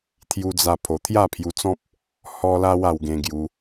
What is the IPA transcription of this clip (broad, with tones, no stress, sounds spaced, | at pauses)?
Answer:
t̪ʰ j u˧ d͡z a˧ pʰ o˨˩ t̪ʰ j a˥˧ pʰ j u˧ t͡s ɔ̃˦ p̚ | h ɔ˧ l a˧ w a˧ w ɡ ẽ˧ ɡ j u˧